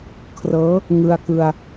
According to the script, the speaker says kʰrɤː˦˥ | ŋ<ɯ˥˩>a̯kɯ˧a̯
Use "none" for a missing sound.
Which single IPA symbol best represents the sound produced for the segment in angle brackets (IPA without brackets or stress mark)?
ɯ˧